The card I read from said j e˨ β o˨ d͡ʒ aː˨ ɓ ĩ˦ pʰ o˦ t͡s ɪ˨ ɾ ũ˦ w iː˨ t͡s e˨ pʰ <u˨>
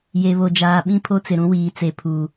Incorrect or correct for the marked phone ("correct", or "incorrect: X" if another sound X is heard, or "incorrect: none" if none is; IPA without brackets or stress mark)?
correct